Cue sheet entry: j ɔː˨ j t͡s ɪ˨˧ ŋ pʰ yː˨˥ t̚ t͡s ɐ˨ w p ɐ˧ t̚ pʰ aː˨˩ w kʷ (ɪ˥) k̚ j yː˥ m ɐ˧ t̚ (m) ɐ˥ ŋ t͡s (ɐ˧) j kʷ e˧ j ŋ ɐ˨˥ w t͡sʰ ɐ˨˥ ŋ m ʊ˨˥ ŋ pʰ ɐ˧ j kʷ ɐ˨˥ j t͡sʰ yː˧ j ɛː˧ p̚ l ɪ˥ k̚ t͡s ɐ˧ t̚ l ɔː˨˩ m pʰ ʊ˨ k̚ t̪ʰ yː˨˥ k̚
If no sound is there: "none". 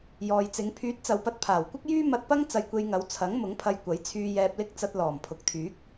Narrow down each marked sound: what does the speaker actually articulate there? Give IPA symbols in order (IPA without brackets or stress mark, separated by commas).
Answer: ɪ˥, p, ɐ˧